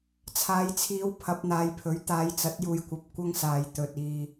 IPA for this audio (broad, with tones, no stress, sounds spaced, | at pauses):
t͡sʰ aː˨˧ j t͡sʰ iː˨˧ w pʰ ɐ˨˥ p̚ n̪ aː˨˧ j pʰ ɵ˨˥ ɥ t̪ aː˨˧ j t͡s ɐ˨˥ t̚ j uː˨ j kʷ ɐ˨˥ p̚ kʷ ɐ˥ ŋ s aː˨ j t̪ ɵ˨ t̚ iː˨